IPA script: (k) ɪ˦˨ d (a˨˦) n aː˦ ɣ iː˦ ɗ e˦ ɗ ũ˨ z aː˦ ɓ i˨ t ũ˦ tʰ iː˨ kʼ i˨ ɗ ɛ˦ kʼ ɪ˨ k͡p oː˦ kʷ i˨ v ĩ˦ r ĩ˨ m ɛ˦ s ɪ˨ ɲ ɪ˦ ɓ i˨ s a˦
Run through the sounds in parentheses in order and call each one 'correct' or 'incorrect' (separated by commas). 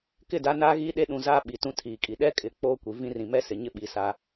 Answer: correct, correct